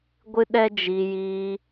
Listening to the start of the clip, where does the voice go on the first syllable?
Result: high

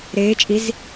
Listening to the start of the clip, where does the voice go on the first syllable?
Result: rising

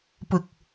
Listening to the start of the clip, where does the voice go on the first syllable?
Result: low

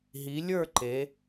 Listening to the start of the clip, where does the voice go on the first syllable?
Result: rising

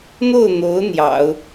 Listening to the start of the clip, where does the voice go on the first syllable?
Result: falling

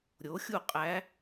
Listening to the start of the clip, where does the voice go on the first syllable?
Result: rising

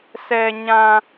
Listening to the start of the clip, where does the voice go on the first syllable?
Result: low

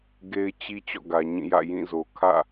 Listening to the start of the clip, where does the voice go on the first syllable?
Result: high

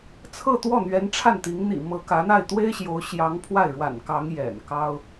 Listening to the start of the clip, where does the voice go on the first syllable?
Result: falling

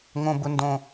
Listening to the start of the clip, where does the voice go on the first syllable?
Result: high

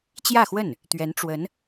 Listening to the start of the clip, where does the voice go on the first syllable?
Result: falling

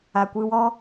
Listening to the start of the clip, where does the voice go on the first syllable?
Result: low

